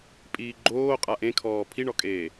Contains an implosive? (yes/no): no